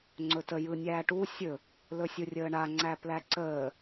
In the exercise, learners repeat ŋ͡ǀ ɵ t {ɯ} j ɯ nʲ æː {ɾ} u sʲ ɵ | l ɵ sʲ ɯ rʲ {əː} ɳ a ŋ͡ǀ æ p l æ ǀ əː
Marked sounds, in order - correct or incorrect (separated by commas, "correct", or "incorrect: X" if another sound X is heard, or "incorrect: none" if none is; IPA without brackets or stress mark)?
incorrect: ə, incorrect: ʈ, correct